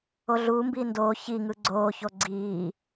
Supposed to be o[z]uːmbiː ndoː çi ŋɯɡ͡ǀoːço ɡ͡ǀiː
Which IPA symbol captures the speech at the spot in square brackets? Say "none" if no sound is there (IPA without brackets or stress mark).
ɮ